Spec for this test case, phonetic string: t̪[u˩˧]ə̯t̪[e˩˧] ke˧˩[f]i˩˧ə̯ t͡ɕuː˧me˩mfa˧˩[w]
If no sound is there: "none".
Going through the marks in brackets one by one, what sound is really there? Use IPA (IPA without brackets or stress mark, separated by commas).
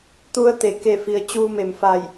u˧, e˩, f, j